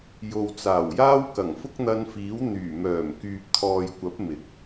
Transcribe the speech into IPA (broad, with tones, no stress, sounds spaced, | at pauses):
j o˨ w t͡s aː˨˩ w j aː˥ w k ɐ˨˩ ŋ f ʊ˥ k̚ n̪ ɐ˧ n f iː˨˥ w n̪ yː˨˩ m œː˨˩ m k yː˨ p̚ t̪ʰ ɔː˨ j kʷ ɐ˨˥ p̚ m ɪ˨˥ k̚